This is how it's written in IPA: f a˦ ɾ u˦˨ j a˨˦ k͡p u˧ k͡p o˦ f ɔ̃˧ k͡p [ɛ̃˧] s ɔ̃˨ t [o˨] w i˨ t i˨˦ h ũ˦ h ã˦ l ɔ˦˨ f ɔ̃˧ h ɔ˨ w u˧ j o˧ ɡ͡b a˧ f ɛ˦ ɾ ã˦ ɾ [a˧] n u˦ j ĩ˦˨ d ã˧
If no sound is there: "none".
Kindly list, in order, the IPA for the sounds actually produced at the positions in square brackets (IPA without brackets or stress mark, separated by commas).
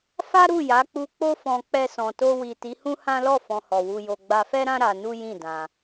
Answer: ɛ˧, o˧, a˧